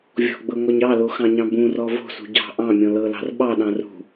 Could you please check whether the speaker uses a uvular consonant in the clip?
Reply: no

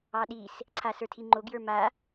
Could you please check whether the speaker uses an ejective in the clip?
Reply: no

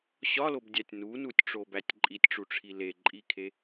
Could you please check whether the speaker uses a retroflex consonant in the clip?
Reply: yes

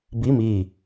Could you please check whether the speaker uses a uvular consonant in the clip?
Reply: no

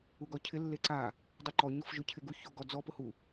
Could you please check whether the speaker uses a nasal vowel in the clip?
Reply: no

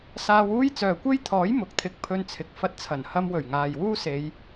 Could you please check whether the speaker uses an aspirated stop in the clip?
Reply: yes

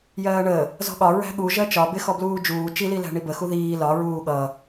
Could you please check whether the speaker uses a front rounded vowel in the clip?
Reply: no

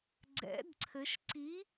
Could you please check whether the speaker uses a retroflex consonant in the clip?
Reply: no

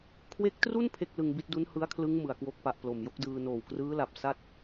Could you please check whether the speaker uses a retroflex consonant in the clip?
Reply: no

